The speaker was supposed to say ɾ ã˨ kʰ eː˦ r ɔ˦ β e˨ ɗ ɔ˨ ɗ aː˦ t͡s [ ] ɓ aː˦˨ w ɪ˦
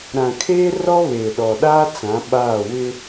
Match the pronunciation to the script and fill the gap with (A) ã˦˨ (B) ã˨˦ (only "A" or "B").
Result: B